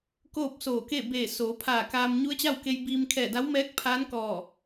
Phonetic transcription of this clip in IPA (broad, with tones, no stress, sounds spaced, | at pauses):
k oː˥˨ p̚ s oː˧˩ k e˥˨ b eː˧˩ s oː˩˧ pʰ aː˧˩ k aː˧ m ɲ u˧˥ ə̯ t͡ɕ a˥˨ w k e˧ j b iː˧ m kʰ ɛː˧˩ d a˧˥ w m ɛː˧˥ k̚ pʰ aː˧˥ n k ɔː˧˩